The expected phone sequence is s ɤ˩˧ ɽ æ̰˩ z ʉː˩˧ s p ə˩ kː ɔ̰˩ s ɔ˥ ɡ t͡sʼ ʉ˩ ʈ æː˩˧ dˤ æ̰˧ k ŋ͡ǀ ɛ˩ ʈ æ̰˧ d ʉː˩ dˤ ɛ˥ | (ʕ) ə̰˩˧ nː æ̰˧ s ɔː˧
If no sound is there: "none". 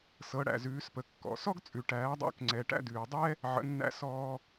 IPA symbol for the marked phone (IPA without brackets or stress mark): ʕ